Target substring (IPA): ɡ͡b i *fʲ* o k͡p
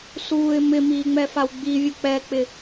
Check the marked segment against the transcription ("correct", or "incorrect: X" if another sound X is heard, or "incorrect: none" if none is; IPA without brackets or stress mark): incorrect: vʲ